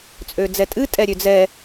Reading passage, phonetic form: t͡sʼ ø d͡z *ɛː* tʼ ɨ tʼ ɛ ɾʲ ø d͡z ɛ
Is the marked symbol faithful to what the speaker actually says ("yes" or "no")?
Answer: no